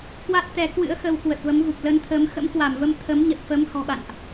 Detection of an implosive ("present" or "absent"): present